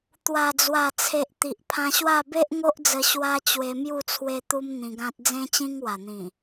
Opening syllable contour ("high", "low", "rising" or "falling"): low